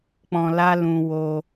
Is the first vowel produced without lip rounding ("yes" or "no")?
no